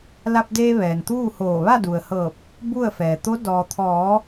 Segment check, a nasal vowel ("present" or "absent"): absent